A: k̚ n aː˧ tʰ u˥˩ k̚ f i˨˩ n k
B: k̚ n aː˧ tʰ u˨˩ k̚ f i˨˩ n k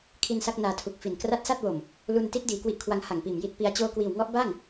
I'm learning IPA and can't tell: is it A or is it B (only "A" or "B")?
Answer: B